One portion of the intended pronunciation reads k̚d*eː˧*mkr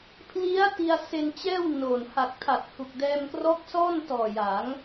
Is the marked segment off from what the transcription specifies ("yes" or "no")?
yes